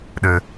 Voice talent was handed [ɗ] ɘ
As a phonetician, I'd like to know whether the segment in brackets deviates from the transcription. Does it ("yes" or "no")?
no